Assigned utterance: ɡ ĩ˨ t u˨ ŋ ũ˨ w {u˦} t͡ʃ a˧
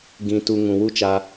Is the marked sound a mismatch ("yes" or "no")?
no